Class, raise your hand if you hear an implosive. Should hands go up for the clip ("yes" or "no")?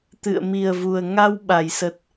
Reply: yes